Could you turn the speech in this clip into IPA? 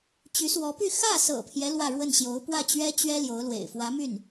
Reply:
t͡ɕ y˧˥ s w ɔ˧˥ p y˥˧ x ä˥˩ s ɤ̰˨˩ pʰ j ɛ˦ l w ä˥˧ ɻ w ə˥˩ n ɕ j o˧˥ ʊ̯ p w ä˥˩ t͡ɕ ɥ ɛ˥ t͡ɕ ɥ ɛ˥ l j o˧˥ ʊ̯ l w ḛ˨˩ ɪ̯ f w ä˧˥ m y˥˩ n

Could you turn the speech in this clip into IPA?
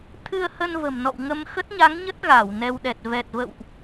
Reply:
t̪ʰ ɨ˧ ə̯ h ə˧ n v ə̤˨˩ m n ɔ̰˧˨ w ŋ ə˧ m x ə˦˥ t̚ ɲ a˨˦ ŋ ɲ ə˦˥ t̚ ɣ a˧˩ w n ɛ˧ w ɗ ɛ˨˩ t̚ v ɛ˨˩ t̚ v ə̰˧˨ w ʔ

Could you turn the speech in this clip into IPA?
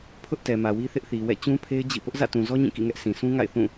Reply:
pʰ ʊ˦ ʔ t ɛ˨ m ä˨ w i˦ θ ɪ˦ ʔ θ i˨ w ɛ̰˦˨ t͡ɕ ũ˦ pʰ e˦ ɪ̯ d͡ʑ ḭ˦˨ p ʊ˦ ʔ z ä̰˦˨ t ũ˨ z ɔ˦ ɲ ĩ˦˨ k ḭ˦˨ ŋ ɛ˦ ʔ sʰ ĩ˨ sʰ ũ˦ ŋ a̰˦˨ ɪ̯ θ ũ˦˨

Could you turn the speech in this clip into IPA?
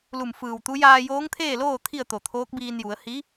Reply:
l u˧˩ m f ɯː˧˩ w t̪ u˧˥ j aː˧ j oː˧˥ ŋ t̪ʰ eː˥˨ l oː˥˨ t̪ʰ i˥˨ ə̯ t̪ o˧˩ t̪ʰ oː˧˥ k̚ b iː˧ n j u˩˧ ə̯ h i˧˥

